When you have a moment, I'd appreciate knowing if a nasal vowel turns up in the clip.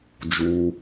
no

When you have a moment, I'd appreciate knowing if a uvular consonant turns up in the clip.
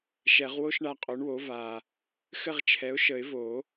yes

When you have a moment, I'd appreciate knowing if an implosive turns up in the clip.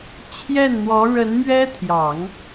no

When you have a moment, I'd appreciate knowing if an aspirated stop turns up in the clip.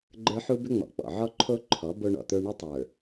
yes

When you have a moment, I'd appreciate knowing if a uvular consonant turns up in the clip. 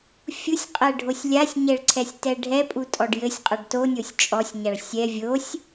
yes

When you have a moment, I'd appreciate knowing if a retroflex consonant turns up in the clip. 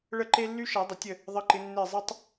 yes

